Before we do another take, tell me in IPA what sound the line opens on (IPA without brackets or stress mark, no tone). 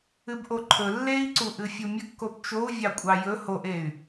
ɨ